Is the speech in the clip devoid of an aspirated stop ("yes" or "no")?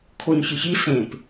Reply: no